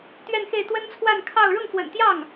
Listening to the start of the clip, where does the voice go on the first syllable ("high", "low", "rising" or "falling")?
falling